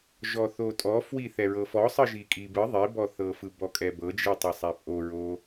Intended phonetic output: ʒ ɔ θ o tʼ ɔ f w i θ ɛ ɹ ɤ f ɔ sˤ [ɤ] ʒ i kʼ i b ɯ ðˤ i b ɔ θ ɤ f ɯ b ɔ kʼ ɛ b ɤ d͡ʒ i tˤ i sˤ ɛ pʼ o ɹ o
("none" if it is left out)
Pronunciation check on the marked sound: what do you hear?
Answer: ɯ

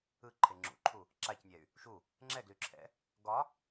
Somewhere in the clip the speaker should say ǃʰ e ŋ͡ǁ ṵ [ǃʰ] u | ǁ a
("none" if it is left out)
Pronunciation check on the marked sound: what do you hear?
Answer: ǃʰ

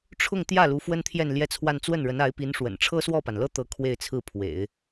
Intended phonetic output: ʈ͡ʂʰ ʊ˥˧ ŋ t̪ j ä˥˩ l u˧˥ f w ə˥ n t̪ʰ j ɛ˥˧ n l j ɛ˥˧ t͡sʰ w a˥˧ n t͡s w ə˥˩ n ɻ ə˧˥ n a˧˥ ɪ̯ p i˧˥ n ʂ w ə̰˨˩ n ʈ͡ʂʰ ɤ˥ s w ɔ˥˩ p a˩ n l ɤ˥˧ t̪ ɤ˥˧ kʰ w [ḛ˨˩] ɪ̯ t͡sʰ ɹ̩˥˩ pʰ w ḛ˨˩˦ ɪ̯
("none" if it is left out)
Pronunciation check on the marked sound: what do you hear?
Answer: e˥˧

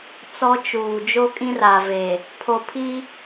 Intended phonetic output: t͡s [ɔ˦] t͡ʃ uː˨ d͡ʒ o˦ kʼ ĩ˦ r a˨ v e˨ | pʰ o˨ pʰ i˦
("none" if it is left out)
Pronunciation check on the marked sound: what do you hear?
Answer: ɔ˦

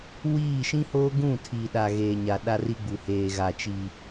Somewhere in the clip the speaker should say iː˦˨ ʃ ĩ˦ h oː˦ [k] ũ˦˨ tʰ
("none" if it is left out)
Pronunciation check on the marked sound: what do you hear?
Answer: ɡ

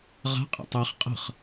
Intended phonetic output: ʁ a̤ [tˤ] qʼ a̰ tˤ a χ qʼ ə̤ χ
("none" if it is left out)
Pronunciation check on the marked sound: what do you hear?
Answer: none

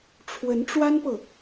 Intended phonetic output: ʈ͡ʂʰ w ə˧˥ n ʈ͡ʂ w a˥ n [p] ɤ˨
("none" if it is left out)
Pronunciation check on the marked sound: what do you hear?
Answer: p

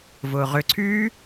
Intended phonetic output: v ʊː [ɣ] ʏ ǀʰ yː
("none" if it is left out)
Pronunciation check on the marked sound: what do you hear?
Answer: ʁ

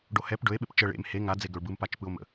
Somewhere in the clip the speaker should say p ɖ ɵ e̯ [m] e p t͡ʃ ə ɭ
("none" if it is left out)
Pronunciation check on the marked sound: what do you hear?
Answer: ɓ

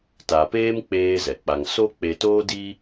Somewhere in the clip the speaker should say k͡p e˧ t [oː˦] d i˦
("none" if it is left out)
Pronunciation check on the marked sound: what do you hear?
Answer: oː˦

